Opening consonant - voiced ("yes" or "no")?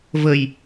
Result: yes